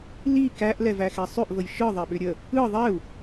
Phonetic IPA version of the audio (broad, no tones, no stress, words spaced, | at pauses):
li kæʔlɛ væxɛsˤʏʔvəj ʃɯ ðˤeɓʏɾʲə | ɯ ðˤɛu̯